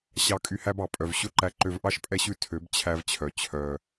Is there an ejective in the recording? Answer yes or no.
yes